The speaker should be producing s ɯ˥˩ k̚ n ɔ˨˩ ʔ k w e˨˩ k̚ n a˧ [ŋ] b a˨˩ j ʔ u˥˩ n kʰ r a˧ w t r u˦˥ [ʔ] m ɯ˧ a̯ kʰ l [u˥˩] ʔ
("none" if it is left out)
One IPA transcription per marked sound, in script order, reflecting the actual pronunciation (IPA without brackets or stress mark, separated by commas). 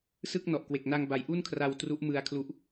ŋ, ʔ, u˦˥